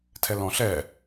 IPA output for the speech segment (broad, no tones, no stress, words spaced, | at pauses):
tʰɛlɔ̃ ɬɛ